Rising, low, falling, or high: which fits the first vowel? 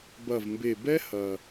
low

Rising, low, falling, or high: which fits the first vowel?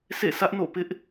falling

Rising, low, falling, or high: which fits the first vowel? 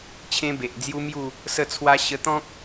high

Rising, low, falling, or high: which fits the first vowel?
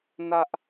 high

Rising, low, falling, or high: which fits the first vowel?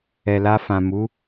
low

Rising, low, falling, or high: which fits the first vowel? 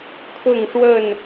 falling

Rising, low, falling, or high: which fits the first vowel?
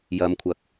low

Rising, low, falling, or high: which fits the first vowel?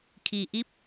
low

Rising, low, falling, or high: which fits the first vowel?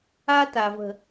high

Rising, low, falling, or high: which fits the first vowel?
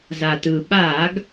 low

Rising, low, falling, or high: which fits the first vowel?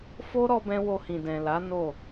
high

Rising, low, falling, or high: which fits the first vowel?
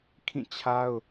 falling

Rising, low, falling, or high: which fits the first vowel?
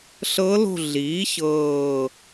rising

